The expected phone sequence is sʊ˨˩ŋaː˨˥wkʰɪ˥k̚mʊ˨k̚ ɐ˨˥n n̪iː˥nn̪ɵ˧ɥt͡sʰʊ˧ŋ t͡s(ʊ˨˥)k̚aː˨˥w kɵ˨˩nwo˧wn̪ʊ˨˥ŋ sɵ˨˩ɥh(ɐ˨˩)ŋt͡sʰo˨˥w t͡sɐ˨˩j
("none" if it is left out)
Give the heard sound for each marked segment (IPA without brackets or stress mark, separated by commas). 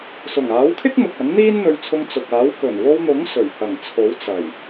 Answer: ʊ˨, ɐ˨˩